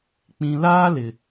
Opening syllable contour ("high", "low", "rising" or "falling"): low